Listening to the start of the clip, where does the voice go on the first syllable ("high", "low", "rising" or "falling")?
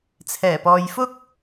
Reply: low